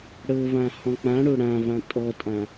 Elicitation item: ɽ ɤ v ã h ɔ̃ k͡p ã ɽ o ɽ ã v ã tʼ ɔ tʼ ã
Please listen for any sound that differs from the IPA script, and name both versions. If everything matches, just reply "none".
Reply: none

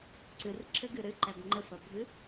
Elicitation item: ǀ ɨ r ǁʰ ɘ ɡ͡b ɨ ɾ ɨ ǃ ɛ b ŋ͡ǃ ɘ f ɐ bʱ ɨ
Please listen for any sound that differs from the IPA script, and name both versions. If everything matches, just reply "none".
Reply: ɡ͡b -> ɡ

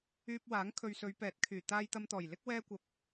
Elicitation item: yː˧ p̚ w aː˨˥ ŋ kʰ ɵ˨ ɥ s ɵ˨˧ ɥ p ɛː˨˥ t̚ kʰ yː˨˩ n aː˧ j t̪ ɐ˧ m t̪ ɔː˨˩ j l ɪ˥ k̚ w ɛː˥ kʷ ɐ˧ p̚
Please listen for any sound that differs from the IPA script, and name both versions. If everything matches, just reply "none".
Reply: n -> t̪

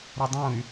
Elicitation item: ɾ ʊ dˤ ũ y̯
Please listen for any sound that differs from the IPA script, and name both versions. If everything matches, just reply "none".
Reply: none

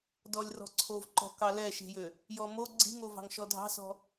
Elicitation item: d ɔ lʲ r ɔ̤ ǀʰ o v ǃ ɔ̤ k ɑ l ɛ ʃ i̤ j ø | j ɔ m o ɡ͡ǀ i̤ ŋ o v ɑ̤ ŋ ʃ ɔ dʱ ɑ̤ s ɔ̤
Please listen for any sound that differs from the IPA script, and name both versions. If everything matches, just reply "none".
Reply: none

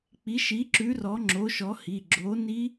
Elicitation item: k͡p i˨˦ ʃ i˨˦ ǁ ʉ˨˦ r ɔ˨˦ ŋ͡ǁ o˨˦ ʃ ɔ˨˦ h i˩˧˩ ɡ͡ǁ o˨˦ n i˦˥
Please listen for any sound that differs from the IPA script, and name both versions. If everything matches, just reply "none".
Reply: none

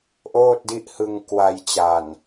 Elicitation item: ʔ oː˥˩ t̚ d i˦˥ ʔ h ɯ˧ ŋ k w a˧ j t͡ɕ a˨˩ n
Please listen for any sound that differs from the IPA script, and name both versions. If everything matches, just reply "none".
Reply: none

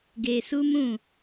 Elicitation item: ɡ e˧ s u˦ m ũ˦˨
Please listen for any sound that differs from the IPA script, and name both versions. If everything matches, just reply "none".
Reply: none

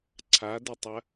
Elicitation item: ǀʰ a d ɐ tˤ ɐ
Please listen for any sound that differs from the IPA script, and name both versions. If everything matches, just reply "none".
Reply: none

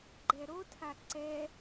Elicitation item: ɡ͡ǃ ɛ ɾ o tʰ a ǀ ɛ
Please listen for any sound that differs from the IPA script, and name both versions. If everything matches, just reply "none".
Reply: none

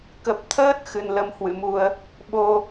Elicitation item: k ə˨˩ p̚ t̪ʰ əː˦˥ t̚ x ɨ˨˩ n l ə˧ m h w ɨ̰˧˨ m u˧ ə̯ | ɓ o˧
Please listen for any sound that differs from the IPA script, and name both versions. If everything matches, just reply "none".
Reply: none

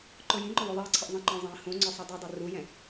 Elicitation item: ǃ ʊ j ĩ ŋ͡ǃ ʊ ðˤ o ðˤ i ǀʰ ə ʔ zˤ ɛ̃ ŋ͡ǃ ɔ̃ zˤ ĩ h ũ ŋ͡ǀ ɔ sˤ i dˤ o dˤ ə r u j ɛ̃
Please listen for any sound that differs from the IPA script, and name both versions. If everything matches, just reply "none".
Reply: none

